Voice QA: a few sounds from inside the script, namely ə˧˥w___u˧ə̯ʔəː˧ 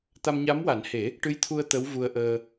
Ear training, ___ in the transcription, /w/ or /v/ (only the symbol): v